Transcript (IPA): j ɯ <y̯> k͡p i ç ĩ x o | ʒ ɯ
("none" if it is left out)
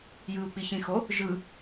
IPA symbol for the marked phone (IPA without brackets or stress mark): u̯